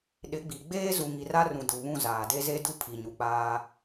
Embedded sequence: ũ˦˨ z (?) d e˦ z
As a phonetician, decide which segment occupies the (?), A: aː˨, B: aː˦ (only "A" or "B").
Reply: A